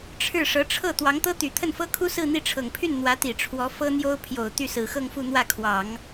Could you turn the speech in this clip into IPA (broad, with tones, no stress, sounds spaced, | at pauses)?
ʈ͡ʂʰ ɻ̩˥˩ ʂ ɤ˧˥ ʈ͡ʂʰ ɤ˥˩ t̪ w ɑ˧˥ ŋ t̪ ɤ˥ t̪ y˨˩ t̪ʰ ə˥˩ n f ɤ˥ kʰ u˥ s ɹ̩˥˧ n̪ i˥˩ ʈ͡ʂʰ ɤ˨˩ ŋ pʰ y˥˩ n n̪ w ä˧˥ t̪ i˨˩ ʈ͡ʂʰ w ɔ˧˥ f ɤ˥ n̪ j o˥ ʊ̯ pʰ j o˨˩ ʊ̯ t̪ y˥˩ s ɹ̩˨˩ x ɤ˥˧ ŋ f u˥˧ n̪ w ä˥˩ kʰ w ɑ˨˩˦ ŋ